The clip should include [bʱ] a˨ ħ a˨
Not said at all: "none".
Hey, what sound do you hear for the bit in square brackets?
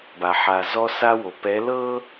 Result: b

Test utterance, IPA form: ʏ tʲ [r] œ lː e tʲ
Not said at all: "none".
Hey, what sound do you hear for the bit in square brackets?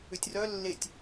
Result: r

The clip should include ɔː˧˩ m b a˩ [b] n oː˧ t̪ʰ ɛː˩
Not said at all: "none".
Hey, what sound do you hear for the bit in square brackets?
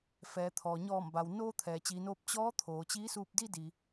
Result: w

